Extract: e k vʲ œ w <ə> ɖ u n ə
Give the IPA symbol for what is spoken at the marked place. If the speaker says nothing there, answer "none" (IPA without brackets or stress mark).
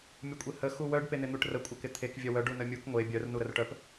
œ